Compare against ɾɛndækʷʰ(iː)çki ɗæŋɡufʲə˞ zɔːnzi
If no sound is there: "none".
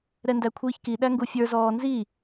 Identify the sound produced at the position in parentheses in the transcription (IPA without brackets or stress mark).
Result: iː